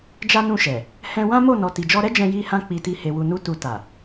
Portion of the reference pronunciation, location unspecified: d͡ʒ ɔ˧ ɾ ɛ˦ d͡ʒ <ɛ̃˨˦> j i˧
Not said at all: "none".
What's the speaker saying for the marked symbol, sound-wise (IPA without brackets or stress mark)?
ɛ̃˧